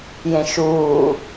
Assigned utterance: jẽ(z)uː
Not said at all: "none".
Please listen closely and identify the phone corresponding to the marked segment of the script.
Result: ʃ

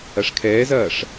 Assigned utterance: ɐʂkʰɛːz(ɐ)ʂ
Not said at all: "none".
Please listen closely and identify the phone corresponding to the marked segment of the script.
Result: ɐː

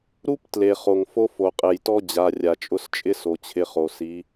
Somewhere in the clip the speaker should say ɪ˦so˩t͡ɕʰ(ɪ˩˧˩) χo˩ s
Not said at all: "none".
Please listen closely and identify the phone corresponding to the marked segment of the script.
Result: ɪ˩˧˩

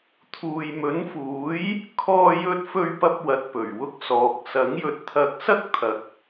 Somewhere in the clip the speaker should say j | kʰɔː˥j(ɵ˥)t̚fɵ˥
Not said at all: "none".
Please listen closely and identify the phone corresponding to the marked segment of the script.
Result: ɵ˥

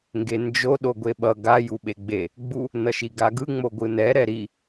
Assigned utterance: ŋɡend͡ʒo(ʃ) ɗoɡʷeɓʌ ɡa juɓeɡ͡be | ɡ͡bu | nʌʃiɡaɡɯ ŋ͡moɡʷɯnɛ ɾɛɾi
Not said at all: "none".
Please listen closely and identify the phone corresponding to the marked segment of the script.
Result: none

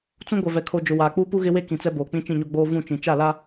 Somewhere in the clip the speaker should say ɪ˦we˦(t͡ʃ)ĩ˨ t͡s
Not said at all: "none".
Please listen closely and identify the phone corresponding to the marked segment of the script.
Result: k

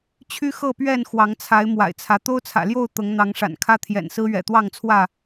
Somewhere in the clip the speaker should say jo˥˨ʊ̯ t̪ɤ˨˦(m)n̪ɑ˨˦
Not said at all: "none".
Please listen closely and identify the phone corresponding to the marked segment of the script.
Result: ŋ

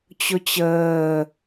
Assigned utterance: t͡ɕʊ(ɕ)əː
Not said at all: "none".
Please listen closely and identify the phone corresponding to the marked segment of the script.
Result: t͡ɕ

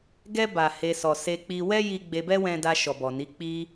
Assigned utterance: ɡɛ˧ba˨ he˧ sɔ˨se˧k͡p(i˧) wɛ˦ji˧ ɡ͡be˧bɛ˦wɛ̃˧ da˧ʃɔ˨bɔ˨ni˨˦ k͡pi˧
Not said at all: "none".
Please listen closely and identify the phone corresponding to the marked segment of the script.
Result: i˧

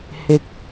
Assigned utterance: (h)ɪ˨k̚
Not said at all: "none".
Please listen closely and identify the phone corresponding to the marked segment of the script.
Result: h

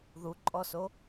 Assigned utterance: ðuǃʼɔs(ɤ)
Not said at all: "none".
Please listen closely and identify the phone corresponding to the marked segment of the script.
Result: o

